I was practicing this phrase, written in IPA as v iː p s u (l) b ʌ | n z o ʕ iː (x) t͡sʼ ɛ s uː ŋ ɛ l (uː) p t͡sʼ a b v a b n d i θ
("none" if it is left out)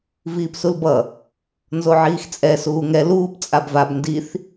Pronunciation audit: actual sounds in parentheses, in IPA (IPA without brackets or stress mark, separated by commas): l, x, uː